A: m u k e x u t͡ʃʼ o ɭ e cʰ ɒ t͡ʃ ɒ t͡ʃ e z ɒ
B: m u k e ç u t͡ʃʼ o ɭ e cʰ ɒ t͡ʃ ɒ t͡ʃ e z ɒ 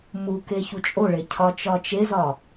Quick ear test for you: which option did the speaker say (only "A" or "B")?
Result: B